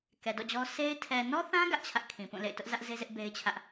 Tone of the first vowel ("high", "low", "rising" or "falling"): low